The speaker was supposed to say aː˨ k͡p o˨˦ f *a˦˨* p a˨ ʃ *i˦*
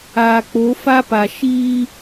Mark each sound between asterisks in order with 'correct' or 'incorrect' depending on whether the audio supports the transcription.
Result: incorrect: a˦, incorrect: iː˦

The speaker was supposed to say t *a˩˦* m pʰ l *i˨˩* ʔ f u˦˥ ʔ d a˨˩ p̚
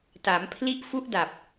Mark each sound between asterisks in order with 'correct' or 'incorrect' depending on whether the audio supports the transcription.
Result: correct, incorrect: i˦˥

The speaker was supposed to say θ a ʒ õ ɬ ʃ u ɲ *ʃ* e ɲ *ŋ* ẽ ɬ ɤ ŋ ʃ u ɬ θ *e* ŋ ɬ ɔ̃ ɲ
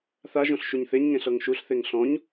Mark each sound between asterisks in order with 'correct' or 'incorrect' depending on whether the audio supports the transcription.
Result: incorrect: θ, correct, correct

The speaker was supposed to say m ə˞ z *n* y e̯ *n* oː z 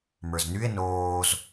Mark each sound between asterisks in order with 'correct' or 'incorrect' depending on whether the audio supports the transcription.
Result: correct, correct

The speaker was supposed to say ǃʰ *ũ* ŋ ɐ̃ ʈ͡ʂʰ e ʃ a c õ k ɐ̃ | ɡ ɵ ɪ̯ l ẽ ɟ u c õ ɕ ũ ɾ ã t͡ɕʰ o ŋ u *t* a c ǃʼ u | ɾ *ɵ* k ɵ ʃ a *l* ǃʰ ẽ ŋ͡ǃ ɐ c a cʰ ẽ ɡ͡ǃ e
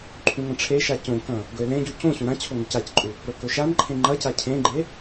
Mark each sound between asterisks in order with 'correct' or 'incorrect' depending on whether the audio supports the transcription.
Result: correct, incorrect: c, correct, incorrect: n

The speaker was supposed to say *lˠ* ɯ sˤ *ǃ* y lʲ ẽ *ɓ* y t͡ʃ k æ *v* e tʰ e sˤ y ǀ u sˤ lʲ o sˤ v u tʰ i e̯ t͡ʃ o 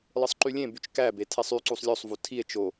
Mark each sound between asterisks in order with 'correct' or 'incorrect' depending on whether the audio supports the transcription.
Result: correct, correct, incorrect: b, incorrect: b

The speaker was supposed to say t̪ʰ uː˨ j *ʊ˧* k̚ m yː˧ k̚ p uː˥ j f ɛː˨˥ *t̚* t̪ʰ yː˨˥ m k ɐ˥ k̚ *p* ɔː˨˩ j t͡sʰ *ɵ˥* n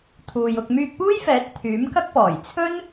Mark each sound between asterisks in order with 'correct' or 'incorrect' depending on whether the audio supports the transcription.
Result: correct, correct, correct, correct

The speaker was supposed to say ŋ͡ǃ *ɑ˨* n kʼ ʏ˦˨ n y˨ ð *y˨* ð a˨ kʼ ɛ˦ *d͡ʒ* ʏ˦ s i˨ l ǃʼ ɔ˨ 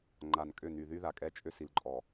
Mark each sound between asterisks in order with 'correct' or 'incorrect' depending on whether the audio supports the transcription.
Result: incorrect: a˨, incorrect: y˦, incorrect: t͡ʃʼ

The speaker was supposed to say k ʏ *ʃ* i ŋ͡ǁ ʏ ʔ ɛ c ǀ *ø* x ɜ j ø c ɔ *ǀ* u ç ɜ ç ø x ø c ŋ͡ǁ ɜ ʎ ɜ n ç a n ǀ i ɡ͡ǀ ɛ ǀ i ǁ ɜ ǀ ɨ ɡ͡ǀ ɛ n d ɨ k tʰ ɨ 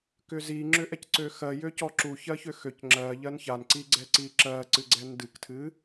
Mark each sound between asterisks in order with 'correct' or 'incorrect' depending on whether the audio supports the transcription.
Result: incorrect: z, correct, incorrect: ǁ

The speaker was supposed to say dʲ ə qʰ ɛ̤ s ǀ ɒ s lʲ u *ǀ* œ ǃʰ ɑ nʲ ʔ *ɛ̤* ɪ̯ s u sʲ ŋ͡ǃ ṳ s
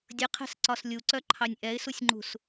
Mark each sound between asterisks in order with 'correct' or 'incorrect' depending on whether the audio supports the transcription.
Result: correct, incorrect: ɛ

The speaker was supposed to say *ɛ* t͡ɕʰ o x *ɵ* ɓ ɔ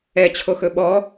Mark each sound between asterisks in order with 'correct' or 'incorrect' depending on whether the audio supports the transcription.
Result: correct, correct

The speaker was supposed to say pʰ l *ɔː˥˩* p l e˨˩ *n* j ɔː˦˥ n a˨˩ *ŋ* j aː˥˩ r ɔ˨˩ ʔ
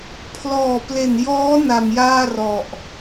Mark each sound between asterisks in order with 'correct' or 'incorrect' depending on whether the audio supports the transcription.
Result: incorrect: ɔː˨˩, correct, incorrect: m

